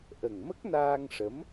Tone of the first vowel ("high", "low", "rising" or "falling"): low